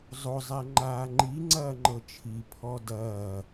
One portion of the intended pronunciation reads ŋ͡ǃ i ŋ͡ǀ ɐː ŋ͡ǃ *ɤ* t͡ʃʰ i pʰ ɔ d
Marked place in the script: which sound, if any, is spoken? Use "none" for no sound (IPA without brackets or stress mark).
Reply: ɤ